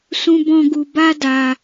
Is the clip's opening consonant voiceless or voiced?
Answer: voiceless